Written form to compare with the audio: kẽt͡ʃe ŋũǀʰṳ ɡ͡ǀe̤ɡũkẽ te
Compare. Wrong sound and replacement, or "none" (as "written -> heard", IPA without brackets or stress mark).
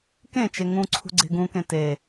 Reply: none